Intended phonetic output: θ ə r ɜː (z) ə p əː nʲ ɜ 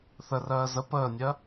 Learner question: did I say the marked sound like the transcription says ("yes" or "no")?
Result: yes